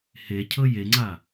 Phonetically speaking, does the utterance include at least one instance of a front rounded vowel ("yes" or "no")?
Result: no